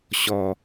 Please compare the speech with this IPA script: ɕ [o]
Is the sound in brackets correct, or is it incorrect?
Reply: incorrect: ɔ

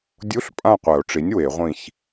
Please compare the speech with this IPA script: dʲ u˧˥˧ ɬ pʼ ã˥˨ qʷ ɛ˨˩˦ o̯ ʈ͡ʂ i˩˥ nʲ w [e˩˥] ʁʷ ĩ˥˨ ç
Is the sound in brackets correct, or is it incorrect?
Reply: incorrect: e˨˩˦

